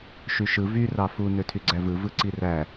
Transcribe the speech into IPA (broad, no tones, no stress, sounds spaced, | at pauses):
ʃ y ʃ ɯ v y r ɑ f u n ø tʰ y ɡ͡ǀ æ v ɯ v ɯ ǀ i r æ